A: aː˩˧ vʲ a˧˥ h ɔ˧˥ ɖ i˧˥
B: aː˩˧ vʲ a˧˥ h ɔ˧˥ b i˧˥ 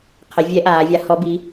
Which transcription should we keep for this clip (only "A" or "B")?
B